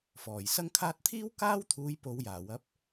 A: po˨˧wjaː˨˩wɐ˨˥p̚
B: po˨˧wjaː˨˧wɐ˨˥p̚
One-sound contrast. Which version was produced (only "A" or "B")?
A